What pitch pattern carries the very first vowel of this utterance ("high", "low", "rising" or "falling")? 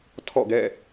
falling